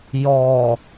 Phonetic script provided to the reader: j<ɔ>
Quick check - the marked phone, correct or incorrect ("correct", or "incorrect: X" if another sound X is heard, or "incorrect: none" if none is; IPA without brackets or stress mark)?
correct